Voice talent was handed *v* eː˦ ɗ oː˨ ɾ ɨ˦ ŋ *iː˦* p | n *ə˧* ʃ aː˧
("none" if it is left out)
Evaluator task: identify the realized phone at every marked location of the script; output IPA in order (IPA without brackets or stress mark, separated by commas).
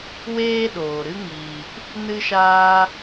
w, iː˨, ɨ˧